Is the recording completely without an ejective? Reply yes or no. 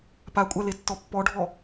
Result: no